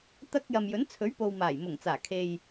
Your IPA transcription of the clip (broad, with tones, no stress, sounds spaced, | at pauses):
t̪ ɐ˧ k̚ j ɐ˨ m j ɵ˨˥ n t͡sʰ ɵ˨˥ ɥ p o˨ w m aː˨˩ j m ʊ˨˩ ŋ t͡s aː˨˩ kʰ e˨ j